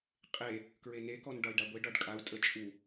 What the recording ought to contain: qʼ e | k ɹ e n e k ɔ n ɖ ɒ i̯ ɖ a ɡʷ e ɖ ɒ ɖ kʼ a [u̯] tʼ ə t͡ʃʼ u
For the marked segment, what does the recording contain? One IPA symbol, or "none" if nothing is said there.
u̯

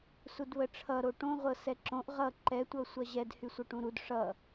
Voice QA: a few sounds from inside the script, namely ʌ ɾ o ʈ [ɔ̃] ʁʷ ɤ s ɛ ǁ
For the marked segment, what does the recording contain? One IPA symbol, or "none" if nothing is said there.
õ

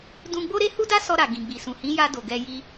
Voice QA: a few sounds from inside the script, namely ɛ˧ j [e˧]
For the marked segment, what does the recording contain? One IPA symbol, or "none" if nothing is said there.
i˧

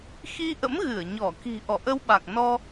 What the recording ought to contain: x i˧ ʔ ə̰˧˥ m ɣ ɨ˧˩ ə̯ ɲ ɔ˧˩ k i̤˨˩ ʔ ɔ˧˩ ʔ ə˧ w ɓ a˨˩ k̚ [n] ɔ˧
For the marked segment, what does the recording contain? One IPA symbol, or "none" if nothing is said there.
n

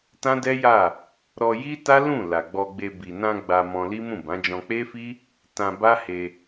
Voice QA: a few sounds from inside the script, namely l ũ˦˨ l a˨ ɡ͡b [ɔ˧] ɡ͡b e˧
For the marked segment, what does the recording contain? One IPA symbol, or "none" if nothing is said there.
ɔ˧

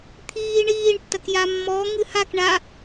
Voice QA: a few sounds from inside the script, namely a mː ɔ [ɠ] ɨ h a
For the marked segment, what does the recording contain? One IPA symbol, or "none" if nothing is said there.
ŋ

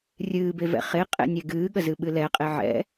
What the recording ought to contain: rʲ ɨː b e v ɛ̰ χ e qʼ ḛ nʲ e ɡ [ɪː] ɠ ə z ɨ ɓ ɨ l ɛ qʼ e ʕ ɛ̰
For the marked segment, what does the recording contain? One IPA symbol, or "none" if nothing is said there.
ɨː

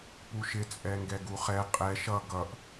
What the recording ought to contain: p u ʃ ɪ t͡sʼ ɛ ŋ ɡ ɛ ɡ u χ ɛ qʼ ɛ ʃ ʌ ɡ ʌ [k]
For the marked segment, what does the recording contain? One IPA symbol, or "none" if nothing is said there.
ʔ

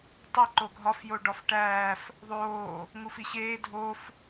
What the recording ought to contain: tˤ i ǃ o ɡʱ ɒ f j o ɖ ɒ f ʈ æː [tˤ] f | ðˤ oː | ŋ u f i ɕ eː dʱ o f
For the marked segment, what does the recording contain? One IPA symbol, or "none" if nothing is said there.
none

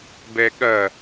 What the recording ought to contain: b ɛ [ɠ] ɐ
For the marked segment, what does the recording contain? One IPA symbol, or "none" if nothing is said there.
ɠ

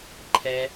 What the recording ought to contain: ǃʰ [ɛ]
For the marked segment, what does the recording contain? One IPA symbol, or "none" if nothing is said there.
ɛ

